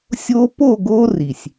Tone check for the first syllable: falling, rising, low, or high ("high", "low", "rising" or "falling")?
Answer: high